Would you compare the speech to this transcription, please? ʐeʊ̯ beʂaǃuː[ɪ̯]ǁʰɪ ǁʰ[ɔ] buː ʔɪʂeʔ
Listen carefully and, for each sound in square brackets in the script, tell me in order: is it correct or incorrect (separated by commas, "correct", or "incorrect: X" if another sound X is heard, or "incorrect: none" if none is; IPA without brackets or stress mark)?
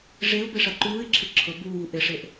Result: correct, incorrect: ʊ